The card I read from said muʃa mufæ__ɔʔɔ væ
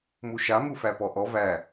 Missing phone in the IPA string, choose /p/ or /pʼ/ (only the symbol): p